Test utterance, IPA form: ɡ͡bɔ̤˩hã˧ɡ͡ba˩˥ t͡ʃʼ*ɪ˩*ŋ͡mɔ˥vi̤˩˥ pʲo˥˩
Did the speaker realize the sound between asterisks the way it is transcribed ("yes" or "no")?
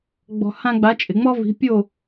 yes